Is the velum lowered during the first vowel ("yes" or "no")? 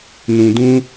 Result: yes